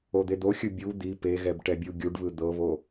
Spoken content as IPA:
o d̪ e d̪ o xʲ ɯ bʲ u d̪ i p e ɣ ɛ b ʈ ɛ bʲ u ɡʲ u ɖ β ɯ d̪ ɤ β o

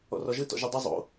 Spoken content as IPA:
ɔ̰ r ɔ ʒ ɯ t ɔ̰ ʒ ɯ dˤ e zˤ o̰

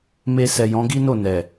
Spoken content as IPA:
m e˧ s ɛ˨ j ɔ̃˨˦ ɡ i˦ n o˦˨ n ɛ˨

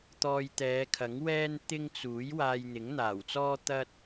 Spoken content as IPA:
t̪ ɔː˧ j t̪ ɛː˨˧ kʰ ɐ˨˥ ŋ w ɛː˥ n t̪ ɪ˥ ŋ t͡s uː˨˥ j w aː˧ j n̪ ɪ˨˥ ŋ n̪ aː˨˩ w t͡s ɔː˥ t̪ ɐ˥ t̚

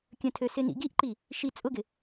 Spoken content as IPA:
kʲ ə̃ tʰ ø s ɪ n ḭ ɡ i ʔ ǃ i | ʃ i t͡sʼ ʊ ɡ ɪ

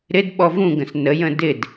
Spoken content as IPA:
ɾ ɪ d ɓ ɔ v ũ ɡ ə̃ s n ə j ə̃ d ɪ d

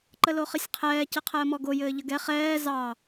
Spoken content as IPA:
ǃ ə l o χ ɘ sʲ qʰ ɛː c ɘ qʰ əː m ɔ ɡ o j ɘː ʎ ə ɡ ɛ χ ɛː z ɑ

